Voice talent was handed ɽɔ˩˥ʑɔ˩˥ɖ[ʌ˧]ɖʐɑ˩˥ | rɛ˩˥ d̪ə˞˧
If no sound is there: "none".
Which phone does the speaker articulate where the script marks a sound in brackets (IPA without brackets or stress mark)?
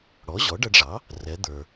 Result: ʌ˧